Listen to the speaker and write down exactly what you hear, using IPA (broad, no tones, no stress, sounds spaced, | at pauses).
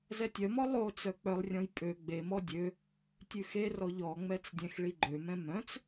z ɛ tʲ œ m ɔ lˠ o t͡s œ k͡p œ lˠ rʲ ɔ̃ j pʼ ø ɡ͡b e m ɔ dʲ ø | tʲ ʉ x e r ɔ ʎ ɔ ŋ͡m ɛ t͡s dʲ ɛ̃ x ɭ i ɡ͡ǃ ø m ɛ̃ m œ̃ t͡s